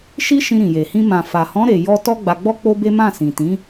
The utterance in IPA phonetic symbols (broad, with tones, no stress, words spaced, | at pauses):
ʃi˦ʃĩ˧ ɾĩ˨je˨ hĩ˧ mã˨fa˨hɔ̃˨˦ ɾe˧jɔ˦ tɔ˦ɡ͡ba˧ɡ͡bɔ˦ k͡po˦be˦ mã˦˨ sĩ˨tĩ˨˦